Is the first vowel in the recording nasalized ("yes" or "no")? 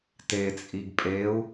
no